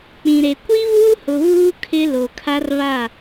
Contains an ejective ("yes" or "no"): no